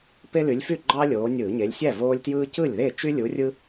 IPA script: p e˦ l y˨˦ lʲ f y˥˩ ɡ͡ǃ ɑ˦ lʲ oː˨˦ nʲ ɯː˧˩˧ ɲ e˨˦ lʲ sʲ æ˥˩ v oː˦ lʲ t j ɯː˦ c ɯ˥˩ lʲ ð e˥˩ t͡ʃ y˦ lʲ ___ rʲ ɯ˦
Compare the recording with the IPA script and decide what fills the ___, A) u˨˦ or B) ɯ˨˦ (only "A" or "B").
A